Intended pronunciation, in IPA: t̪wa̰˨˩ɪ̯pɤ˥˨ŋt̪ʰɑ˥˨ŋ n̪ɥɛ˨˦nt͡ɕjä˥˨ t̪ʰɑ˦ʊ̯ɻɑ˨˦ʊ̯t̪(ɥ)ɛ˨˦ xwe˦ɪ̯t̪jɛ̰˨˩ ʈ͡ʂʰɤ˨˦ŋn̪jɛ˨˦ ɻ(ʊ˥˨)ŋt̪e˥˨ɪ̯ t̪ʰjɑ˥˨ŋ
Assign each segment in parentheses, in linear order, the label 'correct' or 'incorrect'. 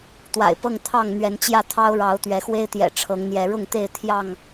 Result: correct, correct

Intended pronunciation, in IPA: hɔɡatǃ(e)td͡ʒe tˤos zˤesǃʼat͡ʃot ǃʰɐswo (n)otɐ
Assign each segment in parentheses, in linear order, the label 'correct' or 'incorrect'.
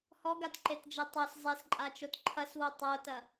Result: correct, incorrect: tˤ

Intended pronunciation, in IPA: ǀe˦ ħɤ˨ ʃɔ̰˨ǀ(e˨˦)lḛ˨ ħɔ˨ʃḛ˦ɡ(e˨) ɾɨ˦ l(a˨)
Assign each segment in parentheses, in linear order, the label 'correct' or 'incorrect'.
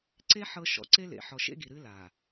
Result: incorrect: e˦, incorrect: i˨, correct

